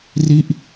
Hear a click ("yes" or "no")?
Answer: no